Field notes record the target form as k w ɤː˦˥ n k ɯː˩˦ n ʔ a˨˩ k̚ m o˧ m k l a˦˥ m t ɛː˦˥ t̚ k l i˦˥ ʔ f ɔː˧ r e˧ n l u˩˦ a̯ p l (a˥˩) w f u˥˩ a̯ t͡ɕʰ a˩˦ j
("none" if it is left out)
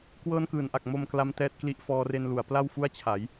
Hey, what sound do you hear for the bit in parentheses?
a˥˩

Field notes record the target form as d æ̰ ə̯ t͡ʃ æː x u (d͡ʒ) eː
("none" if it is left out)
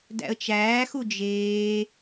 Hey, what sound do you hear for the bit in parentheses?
d͡ʒ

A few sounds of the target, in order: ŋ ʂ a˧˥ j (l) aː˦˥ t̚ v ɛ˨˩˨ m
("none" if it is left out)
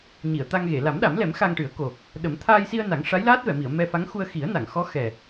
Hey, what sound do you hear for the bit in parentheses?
l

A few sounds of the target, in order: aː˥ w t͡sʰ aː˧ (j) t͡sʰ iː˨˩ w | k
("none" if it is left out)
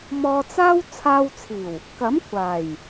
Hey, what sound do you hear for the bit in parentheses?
w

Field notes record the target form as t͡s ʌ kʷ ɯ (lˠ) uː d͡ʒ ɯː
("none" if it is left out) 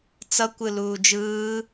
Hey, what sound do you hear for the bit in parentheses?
l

